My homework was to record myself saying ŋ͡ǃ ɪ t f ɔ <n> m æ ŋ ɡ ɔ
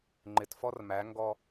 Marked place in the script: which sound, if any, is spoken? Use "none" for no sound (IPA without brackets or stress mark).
r